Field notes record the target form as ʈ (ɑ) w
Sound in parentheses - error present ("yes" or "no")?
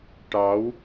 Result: no